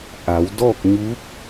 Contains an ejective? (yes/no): no